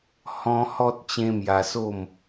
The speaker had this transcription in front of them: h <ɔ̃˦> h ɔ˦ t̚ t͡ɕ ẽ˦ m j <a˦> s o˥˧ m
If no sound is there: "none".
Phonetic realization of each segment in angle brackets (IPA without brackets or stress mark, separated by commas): ɔ̃˦, a˧